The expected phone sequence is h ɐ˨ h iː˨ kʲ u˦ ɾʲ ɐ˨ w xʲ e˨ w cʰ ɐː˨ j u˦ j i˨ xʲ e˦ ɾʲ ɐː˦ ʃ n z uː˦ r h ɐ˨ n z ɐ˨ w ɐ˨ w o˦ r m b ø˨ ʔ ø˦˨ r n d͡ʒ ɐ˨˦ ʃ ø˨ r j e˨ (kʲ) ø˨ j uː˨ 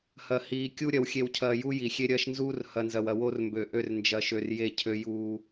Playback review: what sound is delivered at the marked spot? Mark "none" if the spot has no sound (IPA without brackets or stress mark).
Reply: cʰ